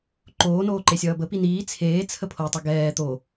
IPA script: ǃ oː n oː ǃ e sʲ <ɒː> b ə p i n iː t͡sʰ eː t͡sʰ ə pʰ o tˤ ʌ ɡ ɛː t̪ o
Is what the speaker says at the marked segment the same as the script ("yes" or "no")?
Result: no